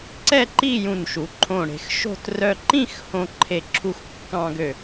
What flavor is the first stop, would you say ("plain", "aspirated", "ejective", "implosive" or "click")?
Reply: click